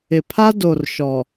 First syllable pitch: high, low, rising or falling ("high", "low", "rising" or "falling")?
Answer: low